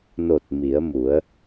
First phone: n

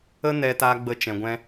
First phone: ə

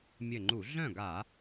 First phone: mʲ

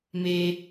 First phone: m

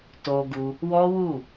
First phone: t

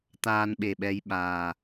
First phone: t̪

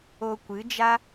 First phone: o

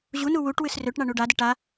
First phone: ʑ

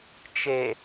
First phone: t͡ʃ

